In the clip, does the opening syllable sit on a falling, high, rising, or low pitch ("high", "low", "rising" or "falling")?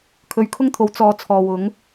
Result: low